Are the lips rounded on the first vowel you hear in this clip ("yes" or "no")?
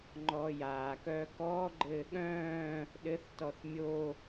yes